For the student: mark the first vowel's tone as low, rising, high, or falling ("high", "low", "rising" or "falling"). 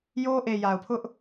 high